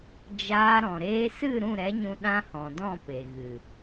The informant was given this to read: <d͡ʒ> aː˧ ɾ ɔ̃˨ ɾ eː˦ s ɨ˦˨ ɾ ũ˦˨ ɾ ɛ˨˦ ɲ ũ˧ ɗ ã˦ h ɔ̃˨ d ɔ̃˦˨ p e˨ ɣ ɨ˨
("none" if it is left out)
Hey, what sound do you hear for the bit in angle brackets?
d͡ʒ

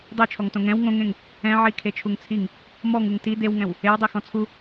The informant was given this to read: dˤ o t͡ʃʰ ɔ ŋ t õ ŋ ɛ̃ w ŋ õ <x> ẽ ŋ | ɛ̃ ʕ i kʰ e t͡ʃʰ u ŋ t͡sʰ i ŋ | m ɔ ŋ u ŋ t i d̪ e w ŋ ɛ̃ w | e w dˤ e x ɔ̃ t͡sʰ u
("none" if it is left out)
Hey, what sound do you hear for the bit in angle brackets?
ŋ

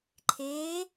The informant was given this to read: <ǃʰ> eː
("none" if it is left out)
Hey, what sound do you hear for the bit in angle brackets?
ǃʰ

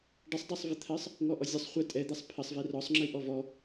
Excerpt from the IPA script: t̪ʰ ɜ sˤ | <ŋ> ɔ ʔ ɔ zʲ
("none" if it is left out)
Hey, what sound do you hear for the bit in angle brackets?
ŋ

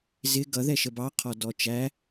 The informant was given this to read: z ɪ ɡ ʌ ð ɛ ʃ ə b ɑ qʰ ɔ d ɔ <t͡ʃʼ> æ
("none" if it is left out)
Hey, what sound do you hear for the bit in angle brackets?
t͡ʃ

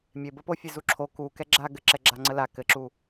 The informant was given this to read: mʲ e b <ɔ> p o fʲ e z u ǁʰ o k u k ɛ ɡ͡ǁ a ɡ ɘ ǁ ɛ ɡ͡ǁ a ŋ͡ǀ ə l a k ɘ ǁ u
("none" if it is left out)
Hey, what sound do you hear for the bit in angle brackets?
ə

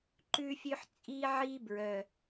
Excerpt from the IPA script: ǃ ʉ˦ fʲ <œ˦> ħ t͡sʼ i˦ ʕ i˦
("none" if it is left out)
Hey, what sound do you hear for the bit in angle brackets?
ø˦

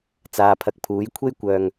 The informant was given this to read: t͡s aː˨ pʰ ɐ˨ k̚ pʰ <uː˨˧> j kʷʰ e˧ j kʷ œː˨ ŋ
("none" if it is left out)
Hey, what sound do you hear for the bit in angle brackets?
uː˨˧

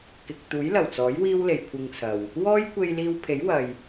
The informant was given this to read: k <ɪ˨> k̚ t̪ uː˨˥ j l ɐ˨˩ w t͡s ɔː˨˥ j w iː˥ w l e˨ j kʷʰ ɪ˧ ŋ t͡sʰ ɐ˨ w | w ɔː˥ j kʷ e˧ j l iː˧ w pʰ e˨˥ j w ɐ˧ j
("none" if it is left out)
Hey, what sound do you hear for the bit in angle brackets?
ɪ˨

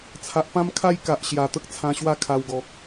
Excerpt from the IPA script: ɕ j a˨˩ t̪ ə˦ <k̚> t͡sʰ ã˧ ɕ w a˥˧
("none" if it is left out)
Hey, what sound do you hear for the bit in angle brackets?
k̚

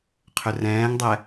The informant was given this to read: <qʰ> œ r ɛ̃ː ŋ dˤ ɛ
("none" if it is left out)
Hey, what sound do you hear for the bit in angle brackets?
qʰ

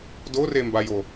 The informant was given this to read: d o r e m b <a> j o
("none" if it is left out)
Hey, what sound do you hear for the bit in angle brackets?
a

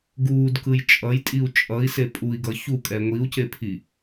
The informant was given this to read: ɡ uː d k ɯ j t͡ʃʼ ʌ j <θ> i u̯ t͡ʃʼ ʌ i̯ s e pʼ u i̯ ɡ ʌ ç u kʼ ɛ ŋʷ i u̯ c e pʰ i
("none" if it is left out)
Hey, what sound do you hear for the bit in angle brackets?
tʼ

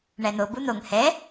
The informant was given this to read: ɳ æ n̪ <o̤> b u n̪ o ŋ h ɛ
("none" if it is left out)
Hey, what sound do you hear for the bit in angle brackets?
o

